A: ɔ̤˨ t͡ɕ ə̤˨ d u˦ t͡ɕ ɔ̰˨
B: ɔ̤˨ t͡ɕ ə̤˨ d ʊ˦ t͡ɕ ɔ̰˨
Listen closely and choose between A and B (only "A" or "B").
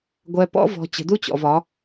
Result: A